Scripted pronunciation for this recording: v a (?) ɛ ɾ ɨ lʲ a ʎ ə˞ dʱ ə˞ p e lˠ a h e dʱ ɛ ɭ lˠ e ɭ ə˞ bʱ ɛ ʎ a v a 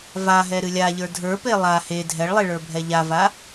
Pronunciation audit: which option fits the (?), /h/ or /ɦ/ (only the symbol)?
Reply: ɦ